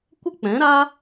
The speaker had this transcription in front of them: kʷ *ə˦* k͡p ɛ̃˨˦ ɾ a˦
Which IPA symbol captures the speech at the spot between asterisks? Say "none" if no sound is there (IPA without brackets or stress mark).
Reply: ə˦